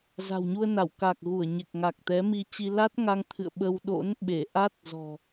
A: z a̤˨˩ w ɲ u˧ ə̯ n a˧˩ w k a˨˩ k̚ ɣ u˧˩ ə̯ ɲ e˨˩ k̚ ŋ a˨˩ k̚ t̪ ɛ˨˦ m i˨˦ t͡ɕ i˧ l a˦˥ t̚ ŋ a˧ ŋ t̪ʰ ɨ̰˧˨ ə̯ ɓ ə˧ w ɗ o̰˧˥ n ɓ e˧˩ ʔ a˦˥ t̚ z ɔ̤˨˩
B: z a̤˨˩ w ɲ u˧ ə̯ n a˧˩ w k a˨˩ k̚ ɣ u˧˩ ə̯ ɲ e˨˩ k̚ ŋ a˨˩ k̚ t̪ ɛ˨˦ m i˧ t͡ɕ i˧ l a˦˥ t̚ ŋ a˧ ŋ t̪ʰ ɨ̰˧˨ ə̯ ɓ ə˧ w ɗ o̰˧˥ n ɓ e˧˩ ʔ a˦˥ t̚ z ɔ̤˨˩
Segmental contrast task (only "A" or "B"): B